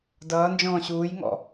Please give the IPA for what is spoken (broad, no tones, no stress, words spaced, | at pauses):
dʌːnd͡ʒɔ̃ː ɕuːjŋɔ̰